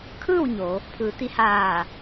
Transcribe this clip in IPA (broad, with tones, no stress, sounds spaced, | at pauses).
kʰ ɯː˥˨ w ɲ o˩˧ | pʰ ɯː˩˧ t̪ i˧ h aː˧˩